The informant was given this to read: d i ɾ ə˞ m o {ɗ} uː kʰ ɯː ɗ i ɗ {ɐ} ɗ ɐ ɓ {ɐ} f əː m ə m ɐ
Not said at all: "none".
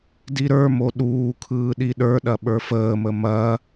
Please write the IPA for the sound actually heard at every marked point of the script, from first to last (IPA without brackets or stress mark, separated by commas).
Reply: ɗ, ə˞, ə˞